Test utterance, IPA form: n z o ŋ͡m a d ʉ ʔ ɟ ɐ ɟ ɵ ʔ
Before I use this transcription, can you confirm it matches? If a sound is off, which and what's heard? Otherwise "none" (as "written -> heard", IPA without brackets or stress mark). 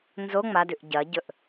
none